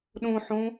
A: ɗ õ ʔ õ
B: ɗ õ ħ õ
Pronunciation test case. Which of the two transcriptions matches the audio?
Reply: B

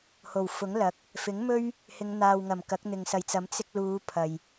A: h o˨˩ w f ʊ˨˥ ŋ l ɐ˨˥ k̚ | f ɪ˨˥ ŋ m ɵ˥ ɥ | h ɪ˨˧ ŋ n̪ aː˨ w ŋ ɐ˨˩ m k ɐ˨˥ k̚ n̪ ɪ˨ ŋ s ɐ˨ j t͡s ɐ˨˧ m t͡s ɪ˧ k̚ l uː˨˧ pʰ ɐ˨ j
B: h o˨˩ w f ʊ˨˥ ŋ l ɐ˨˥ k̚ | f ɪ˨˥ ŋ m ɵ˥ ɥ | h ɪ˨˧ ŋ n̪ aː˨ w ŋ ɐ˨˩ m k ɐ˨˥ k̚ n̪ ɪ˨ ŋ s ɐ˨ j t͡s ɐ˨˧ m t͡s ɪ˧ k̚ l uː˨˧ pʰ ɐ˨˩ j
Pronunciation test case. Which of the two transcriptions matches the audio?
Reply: A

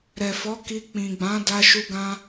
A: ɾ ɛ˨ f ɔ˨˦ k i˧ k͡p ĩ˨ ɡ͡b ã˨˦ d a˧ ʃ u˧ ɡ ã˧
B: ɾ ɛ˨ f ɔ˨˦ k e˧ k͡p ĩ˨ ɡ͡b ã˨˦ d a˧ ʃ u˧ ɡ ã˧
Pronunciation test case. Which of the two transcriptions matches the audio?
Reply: A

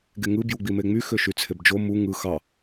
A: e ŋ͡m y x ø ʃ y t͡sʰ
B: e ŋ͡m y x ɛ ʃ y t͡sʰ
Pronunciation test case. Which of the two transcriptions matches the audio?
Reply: A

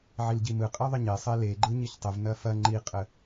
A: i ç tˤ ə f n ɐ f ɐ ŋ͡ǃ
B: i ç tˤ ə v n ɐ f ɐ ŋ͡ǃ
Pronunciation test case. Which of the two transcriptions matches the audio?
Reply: B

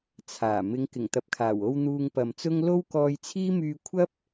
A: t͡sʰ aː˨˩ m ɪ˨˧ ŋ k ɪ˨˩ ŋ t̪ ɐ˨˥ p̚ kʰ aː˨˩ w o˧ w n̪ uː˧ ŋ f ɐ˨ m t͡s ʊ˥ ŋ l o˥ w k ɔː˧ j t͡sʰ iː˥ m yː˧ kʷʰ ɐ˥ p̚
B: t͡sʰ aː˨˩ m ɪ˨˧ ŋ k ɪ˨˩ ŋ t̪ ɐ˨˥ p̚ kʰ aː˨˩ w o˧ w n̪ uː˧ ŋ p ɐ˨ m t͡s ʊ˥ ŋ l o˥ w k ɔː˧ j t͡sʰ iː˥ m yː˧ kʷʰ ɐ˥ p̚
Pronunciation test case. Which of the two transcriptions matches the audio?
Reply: B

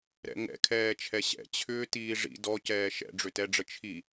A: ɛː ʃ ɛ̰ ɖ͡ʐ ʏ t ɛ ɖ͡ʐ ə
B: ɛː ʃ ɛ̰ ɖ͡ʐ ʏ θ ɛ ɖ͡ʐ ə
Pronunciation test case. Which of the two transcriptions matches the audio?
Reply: A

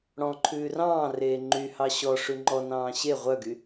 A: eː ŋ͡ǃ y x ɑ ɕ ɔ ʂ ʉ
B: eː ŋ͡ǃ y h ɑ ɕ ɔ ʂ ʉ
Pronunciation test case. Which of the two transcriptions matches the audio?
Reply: B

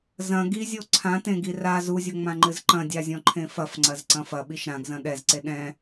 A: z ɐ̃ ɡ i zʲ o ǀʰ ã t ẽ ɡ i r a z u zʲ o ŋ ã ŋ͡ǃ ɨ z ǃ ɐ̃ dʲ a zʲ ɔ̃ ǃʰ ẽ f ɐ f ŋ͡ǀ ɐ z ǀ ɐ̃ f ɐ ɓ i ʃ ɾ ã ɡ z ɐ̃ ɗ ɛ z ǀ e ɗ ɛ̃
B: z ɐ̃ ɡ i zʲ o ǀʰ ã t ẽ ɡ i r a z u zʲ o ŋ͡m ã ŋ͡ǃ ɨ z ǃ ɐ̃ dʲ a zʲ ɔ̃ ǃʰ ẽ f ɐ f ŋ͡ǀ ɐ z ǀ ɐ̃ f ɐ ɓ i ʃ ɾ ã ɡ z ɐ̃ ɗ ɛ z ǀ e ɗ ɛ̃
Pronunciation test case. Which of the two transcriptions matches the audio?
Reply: B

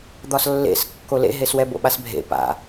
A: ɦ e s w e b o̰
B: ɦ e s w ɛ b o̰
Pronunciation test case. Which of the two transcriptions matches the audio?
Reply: B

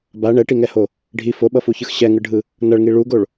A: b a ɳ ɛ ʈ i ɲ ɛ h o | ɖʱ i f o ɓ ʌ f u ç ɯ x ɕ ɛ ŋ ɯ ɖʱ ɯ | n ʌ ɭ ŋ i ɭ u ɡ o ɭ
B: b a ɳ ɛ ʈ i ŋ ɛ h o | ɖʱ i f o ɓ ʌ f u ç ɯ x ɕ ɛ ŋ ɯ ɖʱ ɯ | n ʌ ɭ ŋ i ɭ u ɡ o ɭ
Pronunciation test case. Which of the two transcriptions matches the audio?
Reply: B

